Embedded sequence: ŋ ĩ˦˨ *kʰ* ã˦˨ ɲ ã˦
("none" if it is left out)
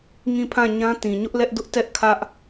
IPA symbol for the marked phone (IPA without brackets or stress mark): pʰ